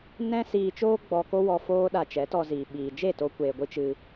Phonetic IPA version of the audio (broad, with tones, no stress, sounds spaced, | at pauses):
n ɛ̃˦ s iː˧ t͡ʃ oː˦ ɡ͡b ɔ˧ k o˦ w ɔ˧ f oː˦ ɗ a˧ t͡ʃ ɛ˨˦ t ɔ˧ z iː˨ ɓ iː˨ d͡ʒ e˦˨ t o˧ kʷ eː˨ ɡʷ ɨ˧ t͡ʃ ɨ˧